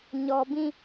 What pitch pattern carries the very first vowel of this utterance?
low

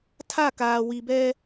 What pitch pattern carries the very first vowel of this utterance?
falling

